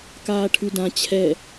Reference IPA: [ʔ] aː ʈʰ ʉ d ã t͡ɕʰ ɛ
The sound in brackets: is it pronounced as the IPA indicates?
no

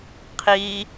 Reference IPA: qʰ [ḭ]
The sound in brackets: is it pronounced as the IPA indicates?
no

